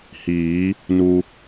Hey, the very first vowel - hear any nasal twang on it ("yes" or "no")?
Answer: no